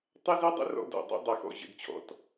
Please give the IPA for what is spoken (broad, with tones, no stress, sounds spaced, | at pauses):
tˤ ʌ˦ z i˦ dˤ ə̰˦ r ɔ̰˦ d ɔ̰˨˩ dˤ ɑ̰˦ dˤ ʌ˨˩ x ɔ̰˨˩ ʑ ə̰˨˩ d t͡ɕʰ ɔ̰˨˩ t